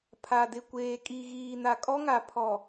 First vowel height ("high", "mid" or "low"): low